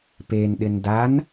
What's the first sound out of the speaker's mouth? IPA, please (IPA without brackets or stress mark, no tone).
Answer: p